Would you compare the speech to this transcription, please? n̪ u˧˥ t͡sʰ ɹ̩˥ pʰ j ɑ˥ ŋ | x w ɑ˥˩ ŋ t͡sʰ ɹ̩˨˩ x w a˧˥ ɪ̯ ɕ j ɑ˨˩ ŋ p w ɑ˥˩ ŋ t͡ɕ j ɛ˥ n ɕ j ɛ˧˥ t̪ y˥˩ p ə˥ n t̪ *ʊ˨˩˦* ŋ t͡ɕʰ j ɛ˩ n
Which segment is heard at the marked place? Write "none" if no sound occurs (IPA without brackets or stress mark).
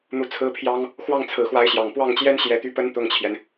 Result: ʊ˥˩